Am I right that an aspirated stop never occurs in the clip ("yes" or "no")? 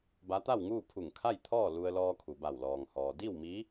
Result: no